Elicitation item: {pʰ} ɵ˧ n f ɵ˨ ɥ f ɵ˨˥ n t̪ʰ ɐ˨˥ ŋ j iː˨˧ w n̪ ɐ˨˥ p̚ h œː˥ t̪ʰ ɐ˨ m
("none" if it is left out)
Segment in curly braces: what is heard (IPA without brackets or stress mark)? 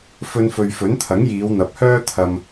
f